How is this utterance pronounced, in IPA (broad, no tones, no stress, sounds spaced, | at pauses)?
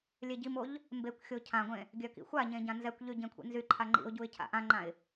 lʲ e ɟ i m o ʎ | m b e kʷ xʲ o cʰ ã ɡʷ ẽ | ɡʲ œ k ḭ xʷ a ɲ ẽ ɟ ã n z ɛ kʷ ʎ y ɟ ẽ kʷʰ ḭ n z y ǃʰ a ŋ͡ǃ ḭ ʊ̯ ɟ u ɪ̯ cʰ a̰ ʔ ã ŋ͡ǃ ã ɪ̯